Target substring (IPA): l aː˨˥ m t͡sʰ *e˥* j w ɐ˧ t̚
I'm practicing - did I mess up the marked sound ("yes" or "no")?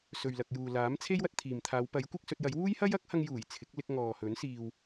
no